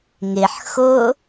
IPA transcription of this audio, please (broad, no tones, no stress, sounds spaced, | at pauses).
ŋ ɪ ħ x ʊ